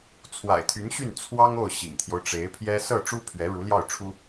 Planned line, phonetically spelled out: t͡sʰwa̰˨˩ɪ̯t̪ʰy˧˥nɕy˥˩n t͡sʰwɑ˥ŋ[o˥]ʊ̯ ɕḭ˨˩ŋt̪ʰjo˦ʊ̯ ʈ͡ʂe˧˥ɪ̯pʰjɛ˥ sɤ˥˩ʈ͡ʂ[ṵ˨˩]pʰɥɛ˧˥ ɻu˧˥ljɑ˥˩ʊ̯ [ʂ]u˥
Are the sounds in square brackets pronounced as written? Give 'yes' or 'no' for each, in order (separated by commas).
no, no, no